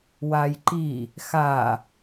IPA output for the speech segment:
wajǃi | xa

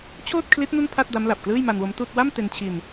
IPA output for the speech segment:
t͡ɕʰoː˥˩t̚kʰli˦˥t̚ nu˥˩npʰa˥˩t̚da˦˥mla˨˩p̚ klɯː˥˩jma˧nwo˦˥mtuː˥˩t̚ wa˥˩m te˧nt͡ɕʰi˧n

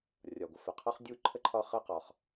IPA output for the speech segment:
rʲɒ˩ɡʷə˩fə˩ qʰɔ˥χdʲu˥ǃʰə˥ ǃʰɒ˥χə˥ qɒ˩χ

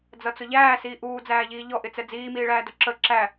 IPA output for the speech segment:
d͡zʌt͡sʊʎæː siːʔuːd͡zæːʎiː ʎɔʔɪt͡sɛ d͡ziːmiːɭæː dʊǁə ǁæ

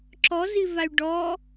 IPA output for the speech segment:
ǁɔzivay̯ ɖɔ

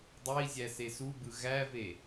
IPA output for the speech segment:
dˤei̯ zʲæsesubɯ ɣæve

